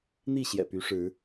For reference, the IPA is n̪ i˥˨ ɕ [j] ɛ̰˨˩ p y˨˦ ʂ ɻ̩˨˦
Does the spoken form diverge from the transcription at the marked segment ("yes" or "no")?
no